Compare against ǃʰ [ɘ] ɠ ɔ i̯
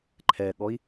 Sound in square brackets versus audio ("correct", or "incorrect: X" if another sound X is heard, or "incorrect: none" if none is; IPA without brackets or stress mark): incorrect: ɛ